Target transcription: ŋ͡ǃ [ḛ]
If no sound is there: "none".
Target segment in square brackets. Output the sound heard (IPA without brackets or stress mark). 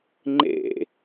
ḛ